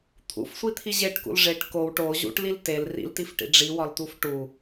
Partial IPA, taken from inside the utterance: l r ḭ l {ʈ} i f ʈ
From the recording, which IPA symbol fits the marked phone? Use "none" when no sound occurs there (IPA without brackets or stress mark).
t